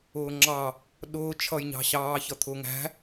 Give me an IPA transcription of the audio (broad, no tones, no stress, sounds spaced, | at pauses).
ʊː ŋ͡ǁ ɑ | ɗ ʊː t͡ʃʰ ʌ j ɲ ɑ̤ ɕ ɑː ç ʌ t̪ʰ ʊː ŋ æ̤